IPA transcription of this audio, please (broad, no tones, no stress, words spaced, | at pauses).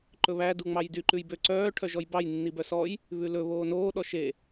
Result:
ǃɵβæ duŋ͡mɑjdy ǃʉjbø ǀœː ʈʰœʒɔjbɑj nːibœsɔj | βʉlɵ βoːnoː ɗɔʃe